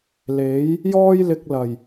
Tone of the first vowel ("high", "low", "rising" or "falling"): rising